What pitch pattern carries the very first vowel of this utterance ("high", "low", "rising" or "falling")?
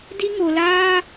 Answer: high